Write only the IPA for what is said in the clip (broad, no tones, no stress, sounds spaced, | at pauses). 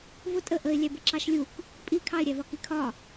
v ʊ tʼ ə ʔ ə ɪ̯ lʲ æ b ə ǁ ɑ ʃ lʲ u k | pʼ i kʰ ɑ ɪ̯ ɾʲ æ v ɒ k i kʰ ɒ